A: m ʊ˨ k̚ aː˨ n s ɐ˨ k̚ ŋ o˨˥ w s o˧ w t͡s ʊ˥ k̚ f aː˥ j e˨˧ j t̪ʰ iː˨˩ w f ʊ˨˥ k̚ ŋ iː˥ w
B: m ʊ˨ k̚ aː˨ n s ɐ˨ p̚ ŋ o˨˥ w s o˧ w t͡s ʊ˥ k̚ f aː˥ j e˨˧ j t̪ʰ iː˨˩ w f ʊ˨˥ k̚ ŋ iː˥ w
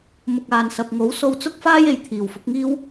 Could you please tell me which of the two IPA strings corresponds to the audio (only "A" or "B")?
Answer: B